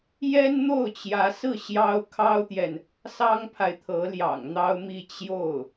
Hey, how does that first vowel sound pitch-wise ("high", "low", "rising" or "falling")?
high